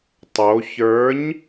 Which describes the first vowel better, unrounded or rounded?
rounded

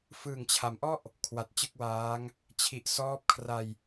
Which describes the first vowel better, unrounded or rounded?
unrounded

